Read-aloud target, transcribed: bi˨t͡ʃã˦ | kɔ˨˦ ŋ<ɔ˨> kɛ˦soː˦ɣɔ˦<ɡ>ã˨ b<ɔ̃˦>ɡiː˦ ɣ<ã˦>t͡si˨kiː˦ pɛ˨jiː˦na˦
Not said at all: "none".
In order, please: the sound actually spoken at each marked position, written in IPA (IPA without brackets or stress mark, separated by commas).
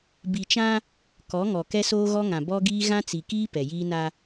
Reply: ɔ˨, ŋ, ɔ˦, ã˦